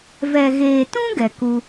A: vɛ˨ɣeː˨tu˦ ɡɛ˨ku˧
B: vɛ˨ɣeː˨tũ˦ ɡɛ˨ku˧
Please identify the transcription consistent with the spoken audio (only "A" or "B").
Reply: B